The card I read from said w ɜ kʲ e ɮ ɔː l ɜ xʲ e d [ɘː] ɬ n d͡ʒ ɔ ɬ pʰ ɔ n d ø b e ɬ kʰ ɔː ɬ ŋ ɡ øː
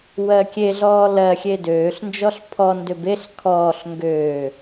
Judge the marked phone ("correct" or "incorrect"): incorrect